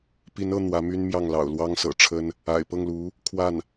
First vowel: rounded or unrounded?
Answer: unrounded